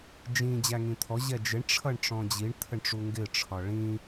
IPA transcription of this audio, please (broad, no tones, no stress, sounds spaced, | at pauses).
d͡ʒ ĩ d͡ʑ æ ŋ ĩ t̪ʰ ɔ ʑ ɛ d͡ʒ ɪ ɳ ʈ͡ʂʰ ʌ ɳ ʈ͡ʂ ɔ̃ d͡ʑ i ɳ t̪ʰ ə ɳ ʈ͡ʂ u ŋ ɡ ɪ ʈ͡ʂʰ ɒ ɭ ĩ